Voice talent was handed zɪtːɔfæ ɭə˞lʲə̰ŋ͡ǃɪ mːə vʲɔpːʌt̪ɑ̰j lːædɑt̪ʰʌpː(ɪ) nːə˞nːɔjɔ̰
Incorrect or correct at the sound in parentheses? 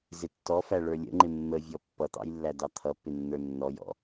correct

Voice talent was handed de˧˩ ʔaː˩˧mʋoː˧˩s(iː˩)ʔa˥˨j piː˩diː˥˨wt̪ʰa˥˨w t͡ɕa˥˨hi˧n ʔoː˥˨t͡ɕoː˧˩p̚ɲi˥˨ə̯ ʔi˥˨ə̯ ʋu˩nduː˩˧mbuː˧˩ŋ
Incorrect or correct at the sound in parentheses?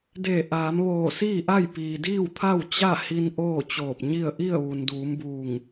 incorrect: iː˥˨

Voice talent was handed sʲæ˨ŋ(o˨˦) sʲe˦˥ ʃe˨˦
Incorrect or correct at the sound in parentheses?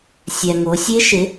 correct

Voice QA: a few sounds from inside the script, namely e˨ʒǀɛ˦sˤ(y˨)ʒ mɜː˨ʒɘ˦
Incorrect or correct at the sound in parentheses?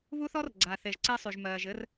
correct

